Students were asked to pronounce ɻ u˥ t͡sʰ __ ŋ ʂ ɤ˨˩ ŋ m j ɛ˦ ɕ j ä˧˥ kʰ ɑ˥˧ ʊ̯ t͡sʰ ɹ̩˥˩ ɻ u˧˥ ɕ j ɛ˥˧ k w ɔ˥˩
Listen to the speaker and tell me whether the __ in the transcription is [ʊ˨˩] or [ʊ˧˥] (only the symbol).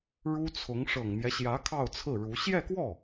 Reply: ʊ˧˥